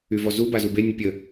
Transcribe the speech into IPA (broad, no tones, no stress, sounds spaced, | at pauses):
y v ɔ z u b a z u b e nʲ ə pʲ ə